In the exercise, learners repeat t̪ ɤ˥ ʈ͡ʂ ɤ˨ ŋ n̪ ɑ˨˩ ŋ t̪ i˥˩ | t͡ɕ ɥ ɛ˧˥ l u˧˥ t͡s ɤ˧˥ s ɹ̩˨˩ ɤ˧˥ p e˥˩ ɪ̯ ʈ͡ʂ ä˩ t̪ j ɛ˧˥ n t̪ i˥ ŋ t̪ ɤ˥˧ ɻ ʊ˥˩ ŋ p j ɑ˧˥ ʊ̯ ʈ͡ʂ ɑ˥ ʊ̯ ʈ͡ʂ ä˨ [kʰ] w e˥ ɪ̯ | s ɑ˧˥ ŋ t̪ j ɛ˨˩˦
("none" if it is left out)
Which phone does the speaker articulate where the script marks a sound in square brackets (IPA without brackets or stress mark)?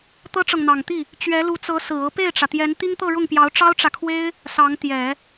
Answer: kʰ